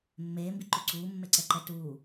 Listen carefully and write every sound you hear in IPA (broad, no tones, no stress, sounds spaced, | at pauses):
mː eː m b i ǃ u ǀ uː mː e ǀ ɛ ǃ ɛ t uː